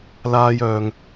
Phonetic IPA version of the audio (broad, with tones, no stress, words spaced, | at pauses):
laː˧jœː˨ŋ